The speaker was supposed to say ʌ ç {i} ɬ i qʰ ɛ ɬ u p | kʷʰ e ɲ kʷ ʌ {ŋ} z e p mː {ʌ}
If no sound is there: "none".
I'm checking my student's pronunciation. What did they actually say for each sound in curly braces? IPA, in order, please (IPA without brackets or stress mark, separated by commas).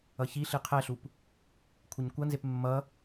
i, n, ʌ